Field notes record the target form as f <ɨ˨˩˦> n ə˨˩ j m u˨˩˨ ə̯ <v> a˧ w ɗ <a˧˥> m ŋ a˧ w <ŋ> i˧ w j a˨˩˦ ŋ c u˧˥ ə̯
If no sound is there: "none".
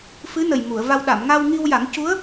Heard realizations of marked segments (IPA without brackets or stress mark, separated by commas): ɨ˧˥, v, a˨˩˨, ŋ